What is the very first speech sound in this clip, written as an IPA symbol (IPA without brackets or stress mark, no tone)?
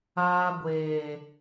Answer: aː